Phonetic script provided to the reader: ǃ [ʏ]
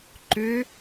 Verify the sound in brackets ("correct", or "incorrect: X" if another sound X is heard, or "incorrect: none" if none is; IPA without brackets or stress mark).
correct